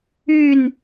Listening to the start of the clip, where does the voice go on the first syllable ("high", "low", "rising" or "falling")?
falling